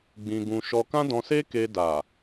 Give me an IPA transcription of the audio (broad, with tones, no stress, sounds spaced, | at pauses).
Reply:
ɡ͡b ĩ˧ ɡ ũ˧ ʃ ɔ˧ k ã˦ d ɔ̃˧ s e˦ k e˧ d a˨